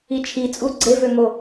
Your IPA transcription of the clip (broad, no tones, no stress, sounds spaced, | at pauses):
i t͡ʃʰ i t͡sʼ u ɡ͡ǀ e v ø ŋ o